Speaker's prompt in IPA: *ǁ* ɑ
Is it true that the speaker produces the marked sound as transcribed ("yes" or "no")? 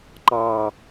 no